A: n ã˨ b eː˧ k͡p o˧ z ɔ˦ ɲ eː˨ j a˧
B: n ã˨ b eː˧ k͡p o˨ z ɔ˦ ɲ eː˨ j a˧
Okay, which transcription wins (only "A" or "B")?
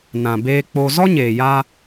A